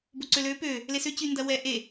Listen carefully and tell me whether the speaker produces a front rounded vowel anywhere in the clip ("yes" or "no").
yes